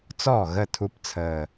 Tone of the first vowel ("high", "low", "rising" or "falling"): falling